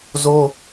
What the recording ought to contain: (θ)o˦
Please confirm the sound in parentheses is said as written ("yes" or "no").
no